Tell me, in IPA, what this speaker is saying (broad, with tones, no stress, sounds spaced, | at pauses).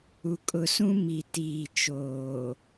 u˨ kʼ ʊ˨ s ũ˦ m i˨ t iː˨ t͡ʃ oː˨